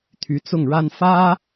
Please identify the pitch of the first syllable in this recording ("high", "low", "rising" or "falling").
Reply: rising